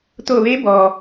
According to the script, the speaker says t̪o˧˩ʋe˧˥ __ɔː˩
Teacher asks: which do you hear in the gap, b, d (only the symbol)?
b